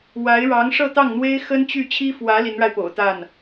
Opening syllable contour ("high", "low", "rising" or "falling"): rising